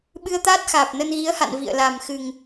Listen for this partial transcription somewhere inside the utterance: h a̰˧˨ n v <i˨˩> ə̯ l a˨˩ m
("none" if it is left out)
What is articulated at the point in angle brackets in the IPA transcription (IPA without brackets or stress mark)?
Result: ḭ˧˨